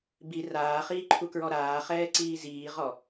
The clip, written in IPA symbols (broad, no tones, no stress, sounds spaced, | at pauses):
b i r aː χ iː ǃʰ u k ɹ ɔ ɾ aː χ ɛː ǀ iː z iː ʁ ɔ